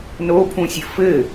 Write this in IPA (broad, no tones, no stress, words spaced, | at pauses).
nopʰũsʲɘ fɘ